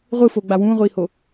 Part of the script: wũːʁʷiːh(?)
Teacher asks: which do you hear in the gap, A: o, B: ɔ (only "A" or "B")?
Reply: A